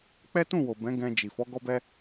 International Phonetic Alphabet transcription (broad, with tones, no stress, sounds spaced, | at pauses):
k͡p ɛ˦ t ũ˦˨ w o˨ b ɛ̃˨˦ ɡ ɛ̃˧ d͡ʒ i˨ f ɔ˨˦ ɡ ɔ˦ b ɛ˦